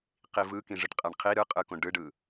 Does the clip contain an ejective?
yes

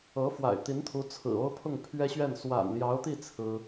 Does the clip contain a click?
no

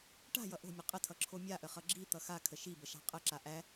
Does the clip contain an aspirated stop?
yes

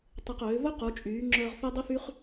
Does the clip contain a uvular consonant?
yes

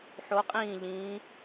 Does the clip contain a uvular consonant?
yes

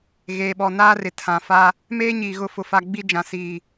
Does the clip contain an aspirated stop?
yes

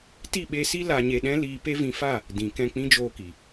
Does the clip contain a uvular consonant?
no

